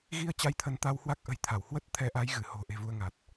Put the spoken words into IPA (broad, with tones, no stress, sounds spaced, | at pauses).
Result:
ɣ i˧ ə̯ t͡ɕ a˧ j t̪ʰ ə˨˦ n t̪ a˧ w h w a˦˥ k̚ ʔ ə̤˨˩ j t̪ʰ a˧˩ w h w ə˦˥ t̚ t̪ʰ ɛ˨˦ ʔ a˨˦ j ɣ ɨ˧˩ h o̤˨˩ ʔ e̤˨˩ v u˧ ə̯ ŋ a˨˩ t̚